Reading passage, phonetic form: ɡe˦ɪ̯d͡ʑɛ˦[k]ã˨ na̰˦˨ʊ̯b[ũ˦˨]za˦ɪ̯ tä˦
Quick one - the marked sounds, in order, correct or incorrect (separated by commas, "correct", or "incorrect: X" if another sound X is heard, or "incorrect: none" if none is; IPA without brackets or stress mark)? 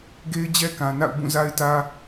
correct, correct